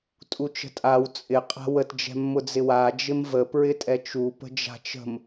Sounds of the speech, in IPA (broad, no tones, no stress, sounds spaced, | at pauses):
tʼ u t͡ʃ ə̤ tʼ a w t͡sʼ ɪ qʼ a̤ w ə t d͡ʒ ɛ̤ mː ʊ d͡z ɪ w a d͡ʒ ɪ m v ə p ɹ ɪ tʼ ɛ t͡ʃ u p ə̤ d͡ʒ a̤ t͡ʃ ə̤ m